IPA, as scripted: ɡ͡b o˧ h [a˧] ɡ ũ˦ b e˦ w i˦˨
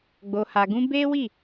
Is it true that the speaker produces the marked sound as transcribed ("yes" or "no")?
yes